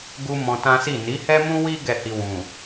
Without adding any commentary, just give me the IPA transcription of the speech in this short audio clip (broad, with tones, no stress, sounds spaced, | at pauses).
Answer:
ɡ u˦ m ɔ̃˧ t ã˦ s i˦˨ n i˨˦ h ɛ˦ m ũ˦ w i˦ ɡ ɛ˦˨ h i˧ w ũ˨